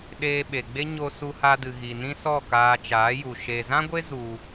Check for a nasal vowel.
present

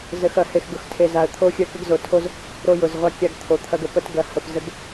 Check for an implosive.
absent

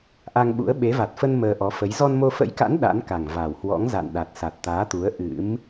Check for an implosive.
present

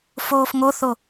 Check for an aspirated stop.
absent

